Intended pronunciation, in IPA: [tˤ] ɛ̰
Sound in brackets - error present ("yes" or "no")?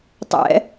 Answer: no